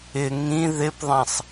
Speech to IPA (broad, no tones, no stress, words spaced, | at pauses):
ɪ ŋĩ ðɪpðˤãsˤ